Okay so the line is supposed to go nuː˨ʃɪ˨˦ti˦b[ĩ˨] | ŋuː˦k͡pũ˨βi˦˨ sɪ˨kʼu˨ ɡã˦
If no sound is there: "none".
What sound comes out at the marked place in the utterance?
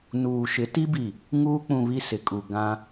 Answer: i˨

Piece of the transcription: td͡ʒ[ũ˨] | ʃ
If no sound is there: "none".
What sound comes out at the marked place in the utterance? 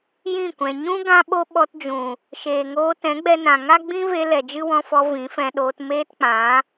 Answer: ũ˨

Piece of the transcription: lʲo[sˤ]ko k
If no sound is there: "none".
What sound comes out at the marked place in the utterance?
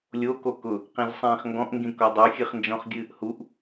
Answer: none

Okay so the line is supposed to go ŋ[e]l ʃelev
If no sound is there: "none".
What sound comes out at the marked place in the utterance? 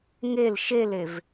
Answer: e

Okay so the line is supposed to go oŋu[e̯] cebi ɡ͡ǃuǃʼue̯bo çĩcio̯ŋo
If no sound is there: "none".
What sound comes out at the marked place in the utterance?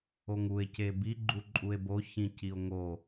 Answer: e̯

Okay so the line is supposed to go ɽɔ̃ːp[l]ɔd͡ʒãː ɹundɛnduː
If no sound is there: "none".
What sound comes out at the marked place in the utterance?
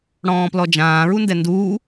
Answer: l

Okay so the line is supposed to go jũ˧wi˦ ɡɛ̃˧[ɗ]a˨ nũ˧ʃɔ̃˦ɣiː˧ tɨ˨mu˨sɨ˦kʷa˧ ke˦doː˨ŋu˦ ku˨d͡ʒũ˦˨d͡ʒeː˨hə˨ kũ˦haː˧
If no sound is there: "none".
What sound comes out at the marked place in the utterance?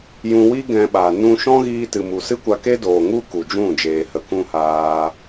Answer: ɓ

